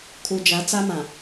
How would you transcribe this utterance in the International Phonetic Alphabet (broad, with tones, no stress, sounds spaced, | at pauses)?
kʰ u˨ d͡ʒ a˨˦ t͡s a˦ m ã˨